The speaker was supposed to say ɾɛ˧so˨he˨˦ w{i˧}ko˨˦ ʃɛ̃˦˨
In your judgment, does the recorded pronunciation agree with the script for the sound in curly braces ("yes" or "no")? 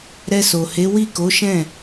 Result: no